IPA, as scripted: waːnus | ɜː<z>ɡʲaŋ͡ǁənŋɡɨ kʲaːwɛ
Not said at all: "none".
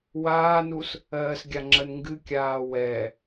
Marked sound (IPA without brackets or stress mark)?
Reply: s